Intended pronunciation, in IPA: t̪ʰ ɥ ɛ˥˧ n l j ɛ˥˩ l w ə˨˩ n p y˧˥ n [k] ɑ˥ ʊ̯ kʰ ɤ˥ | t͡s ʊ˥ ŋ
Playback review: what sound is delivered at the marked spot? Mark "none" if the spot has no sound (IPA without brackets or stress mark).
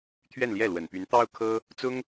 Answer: t̪